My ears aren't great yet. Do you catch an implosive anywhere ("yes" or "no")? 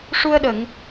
yes